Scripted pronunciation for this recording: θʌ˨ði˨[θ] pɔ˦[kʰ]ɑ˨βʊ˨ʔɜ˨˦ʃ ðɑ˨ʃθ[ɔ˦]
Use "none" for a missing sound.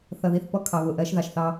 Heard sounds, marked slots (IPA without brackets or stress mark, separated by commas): θ, kʰ, ɑ˦